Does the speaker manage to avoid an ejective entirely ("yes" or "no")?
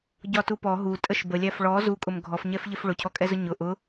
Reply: no